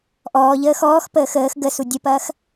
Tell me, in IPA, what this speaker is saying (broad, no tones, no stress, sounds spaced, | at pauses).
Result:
ʔ ɔː ʎ əː x ɔː x p əː x əː x ɡ ə s u dʲ ə p ɐː x